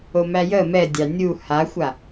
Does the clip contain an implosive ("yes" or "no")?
no